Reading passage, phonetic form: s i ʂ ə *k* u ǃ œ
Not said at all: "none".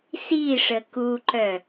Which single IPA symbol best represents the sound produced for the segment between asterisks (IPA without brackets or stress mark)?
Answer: k